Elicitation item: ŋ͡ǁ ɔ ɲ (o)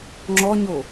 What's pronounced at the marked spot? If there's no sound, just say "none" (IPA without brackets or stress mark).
o